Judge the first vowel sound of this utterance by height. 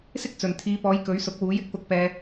high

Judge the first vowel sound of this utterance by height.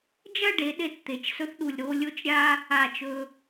low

